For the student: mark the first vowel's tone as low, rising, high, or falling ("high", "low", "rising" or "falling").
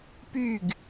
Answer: falling